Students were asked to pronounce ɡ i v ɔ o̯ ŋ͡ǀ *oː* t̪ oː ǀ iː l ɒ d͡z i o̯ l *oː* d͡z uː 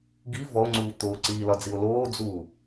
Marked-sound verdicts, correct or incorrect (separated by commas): incorrect, correct